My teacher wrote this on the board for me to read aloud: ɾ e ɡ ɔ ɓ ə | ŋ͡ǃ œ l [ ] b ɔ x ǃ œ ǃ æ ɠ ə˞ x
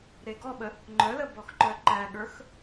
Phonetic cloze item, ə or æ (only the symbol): ə